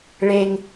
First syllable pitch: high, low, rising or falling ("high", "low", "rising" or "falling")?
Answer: high